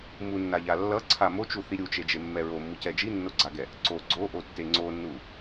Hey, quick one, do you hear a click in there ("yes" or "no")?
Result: yes